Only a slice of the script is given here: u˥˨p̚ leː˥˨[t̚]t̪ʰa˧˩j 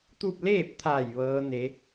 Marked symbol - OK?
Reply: no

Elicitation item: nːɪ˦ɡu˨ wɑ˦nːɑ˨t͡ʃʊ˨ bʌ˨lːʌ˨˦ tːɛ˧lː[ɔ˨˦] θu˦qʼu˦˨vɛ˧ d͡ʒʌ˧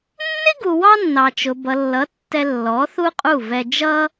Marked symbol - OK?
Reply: yes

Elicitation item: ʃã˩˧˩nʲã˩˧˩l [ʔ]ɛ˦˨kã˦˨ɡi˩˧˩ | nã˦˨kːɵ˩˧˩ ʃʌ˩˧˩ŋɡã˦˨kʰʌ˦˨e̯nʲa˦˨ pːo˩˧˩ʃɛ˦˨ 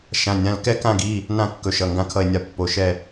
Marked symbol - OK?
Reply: no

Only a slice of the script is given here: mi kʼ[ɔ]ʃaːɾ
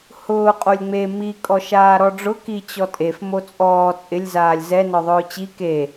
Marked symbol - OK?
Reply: yes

